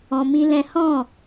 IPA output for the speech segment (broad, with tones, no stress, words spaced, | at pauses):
ɔ̃˧mĩ˦lɛ̃˦ hɔ̃˦˨